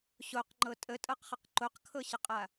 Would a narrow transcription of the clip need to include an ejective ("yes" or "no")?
yes